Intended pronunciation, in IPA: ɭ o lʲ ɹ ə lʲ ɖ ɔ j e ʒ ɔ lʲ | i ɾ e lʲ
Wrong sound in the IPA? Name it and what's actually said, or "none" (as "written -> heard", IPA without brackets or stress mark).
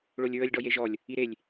none